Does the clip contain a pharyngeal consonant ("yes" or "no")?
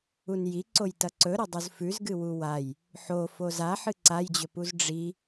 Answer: yes